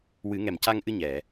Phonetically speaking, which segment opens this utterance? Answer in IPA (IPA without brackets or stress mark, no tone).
w